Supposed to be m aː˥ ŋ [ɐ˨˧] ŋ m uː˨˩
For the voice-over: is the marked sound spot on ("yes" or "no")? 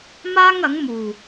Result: no